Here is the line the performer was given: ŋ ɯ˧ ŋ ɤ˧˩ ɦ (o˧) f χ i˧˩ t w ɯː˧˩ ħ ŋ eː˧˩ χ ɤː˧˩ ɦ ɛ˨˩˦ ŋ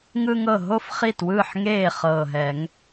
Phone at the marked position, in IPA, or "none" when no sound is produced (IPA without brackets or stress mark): o˧